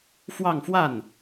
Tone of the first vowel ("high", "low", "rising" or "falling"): falling